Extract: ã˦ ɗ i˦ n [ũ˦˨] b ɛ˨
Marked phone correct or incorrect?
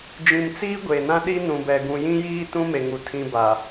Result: incorrect: ũ˨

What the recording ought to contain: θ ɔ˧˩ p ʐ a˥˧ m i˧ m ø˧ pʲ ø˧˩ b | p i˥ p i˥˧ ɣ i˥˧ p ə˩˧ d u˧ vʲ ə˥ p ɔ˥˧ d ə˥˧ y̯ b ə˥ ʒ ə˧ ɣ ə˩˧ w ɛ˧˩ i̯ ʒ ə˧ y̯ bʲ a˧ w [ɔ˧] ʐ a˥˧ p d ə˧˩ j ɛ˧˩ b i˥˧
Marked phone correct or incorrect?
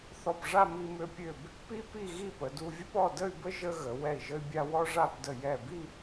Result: incorrect: ɔ˥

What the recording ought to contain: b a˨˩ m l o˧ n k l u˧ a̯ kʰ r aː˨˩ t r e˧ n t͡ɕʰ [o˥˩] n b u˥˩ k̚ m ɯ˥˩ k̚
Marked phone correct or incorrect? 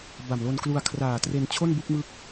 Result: correct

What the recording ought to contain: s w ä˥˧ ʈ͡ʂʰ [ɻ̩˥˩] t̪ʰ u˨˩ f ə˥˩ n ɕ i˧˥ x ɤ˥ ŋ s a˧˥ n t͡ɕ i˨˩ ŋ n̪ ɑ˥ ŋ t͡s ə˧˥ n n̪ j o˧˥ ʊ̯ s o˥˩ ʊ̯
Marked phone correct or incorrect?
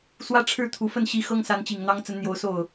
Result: correct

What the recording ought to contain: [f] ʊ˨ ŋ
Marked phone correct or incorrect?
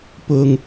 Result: incorrect: p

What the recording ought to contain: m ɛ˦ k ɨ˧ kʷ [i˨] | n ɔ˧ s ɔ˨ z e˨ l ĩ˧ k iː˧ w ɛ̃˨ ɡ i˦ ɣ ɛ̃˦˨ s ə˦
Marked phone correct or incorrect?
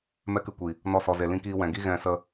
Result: correct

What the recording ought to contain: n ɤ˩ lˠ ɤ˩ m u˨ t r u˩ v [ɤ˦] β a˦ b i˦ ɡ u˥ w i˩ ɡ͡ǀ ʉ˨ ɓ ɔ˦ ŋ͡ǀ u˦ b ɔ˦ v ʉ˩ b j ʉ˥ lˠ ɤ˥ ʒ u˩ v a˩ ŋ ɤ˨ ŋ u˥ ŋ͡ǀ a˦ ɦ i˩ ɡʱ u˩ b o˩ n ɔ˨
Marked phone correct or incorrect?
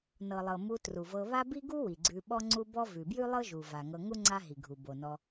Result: incorrect: ɤ˨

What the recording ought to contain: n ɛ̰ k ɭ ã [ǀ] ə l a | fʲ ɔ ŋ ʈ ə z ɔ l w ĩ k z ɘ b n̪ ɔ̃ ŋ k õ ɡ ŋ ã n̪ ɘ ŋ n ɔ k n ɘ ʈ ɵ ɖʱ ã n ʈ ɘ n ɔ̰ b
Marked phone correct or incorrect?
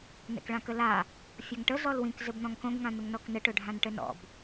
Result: incorrect: k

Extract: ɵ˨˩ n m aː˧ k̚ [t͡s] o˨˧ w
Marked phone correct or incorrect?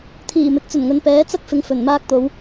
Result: incorrect: t̪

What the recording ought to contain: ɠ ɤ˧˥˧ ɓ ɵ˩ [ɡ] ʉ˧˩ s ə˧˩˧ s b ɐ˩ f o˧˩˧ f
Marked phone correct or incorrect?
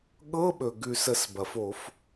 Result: correct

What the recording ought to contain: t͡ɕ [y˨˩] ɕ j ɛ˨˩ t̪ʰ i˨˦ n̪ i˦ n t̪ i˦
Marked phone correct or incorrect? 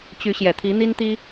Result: incorrect: y˨˦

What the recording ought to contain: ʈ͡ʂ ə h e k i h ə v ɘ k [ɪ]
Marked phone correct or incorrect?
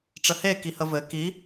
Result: incorrect: i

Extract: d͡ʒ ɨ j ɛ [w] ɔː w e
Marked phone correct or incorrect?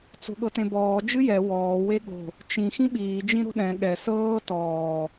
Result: correct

